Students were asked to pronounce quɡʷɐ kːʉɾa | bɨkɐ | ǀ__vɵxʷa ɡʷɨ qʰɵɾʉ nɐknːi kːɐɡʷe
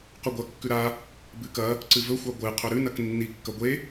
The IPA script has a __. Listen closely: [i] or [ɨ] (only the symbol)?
ɨ